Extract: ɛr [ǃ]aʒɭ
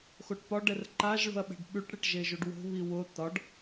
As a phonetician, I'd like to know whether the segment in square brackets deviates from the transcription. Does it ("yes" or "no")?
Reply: no